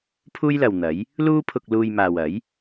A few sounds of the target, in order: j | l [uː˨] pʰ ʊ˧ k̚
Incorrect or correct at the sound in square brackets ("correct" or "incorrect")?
incorrect